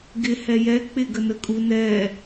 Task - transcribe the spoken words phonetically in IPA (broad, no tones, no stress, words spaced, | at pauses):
ɡɪ hɛjɛ k͡pɪ ɡənəkʼu nɛ